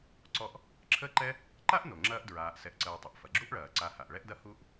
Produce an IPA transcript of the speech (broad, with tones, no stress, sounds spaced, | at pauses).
ǀ ɔ˦ ʔ | ǁʰ əː˦ ǃ ɛ˦ | ǃ a˥ ʔ n o˩ ŋ͡ǁ ɐː˥ ʔ d ɹ aː˨ ʔ s ɛ˨ ʔ ǀ əː˨ tˤ ə˩ ʔ f ɐ˩ ɡ͡ǁ u˥ ʔ ɭ ɐː˩ ǀ a˨ h a˩ ʔ ɭ ɛ˥ ʔ d ɐ˥ h u˥ ʔ